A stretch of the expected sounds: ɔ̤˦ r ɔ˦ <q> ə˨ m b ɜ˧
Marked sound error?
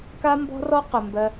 no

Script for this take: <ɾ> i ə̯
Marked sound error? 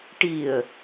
yes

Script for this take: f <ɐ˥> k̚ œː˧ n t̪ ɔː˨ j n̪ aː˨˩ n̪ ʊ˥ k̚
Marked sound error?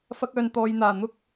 no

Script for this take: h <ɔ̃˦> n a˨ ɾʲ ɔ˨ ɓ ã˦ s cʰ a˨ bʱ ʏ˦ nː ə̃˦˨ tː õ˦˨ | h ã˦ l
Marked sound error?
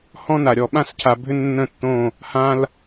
no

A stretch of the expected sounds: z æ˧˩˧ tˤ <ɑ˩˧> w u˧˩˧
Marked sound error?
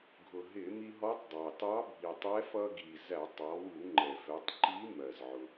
yes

